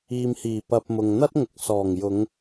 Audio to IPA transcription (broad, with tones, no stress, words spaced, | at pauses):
iː˨mhiː˨˩ pɐ˧p̚mʊ˨ŋ n̪ɐ˥t̚ŋʊ˨˥k̚ sɔː˨˩ŋjʊ˨˧ŋ